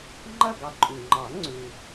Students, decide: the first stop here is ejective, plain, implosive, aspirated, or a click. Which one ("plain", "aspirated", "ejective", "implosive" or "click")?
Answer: click